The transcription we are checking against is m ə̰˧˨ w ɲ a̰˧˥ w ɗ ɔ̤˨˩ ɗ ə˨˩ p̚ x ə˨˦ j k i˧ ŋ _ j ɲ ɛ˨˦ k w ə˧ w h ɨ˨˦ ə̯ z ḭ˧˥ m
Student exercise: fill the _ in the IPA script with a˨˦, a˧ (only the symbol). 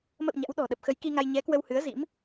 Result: a˧